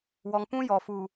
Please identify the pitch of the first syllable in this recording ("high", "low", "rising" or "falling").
low